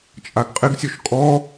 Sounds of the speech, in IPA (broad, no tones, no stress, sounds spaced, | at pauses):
t͡ʃʼ a ɡ qʼ ɪ ɡ sʲ ɔ ʃ kʼ ɔ